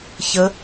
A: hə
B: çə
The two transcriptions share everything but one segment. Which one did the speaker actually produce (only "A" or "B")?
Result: B